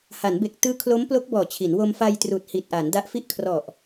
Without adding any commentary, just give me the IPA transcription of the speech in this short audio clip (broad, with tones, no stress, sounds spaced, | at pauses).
h a˩˦ n b e˨˩ k̚ t ɯː˦˥ kʰ l o˦˥ m p l o˦˥ k̚ b ɔː˨˩ t͡ɕʰ i˩˦ n w o˧ m f a˧ j t r uː˨˩ t̚ h i˨˩ t̚ ʔ a˩˦ n d a˦˥ ʔ f i˥˩ ʔ kʰ r ɔ˨˩ ʔ